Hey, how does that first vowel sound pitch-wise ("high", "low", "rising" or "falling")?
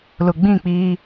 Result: low